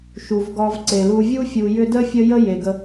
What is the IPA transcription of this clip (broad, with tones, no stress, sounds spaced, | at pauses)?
ʃ u˩ v ɡ ɔ˨ v ǀ e˩ l u˨ vʲ u˦ fʲ u˨ j ʏ˦ d ə˥ fʲ ə˦ j ə˦ j e˩ ɡ ə˨